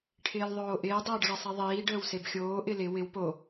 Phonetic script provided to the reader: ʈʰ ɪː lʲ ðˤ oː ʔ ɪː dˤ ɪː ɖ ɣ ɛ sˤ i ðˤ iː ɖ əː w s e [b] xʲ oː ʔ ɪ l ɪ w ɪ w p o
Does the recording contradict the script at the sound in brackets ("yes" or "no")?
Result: no